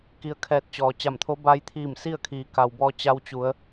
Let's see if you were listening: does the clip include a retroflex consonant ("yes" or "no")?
no